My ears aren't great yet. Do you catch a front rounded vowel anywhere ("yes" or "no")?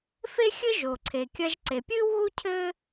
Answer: no